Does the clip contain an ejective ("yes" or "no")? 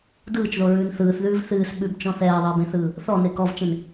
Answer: no